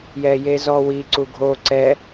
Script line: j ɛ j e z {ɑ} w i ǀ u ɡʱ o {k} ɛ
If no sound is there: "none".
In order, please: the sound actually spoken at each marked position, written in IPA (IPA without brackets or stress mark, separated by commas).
ɔ, ǀ